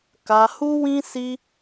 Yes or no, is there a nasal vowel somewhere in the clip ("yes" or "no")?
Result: yes